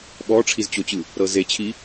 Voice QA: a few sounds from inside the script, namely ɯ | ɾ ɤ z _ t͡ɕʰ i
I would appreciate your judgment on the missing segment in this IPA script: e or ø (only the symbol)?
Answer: e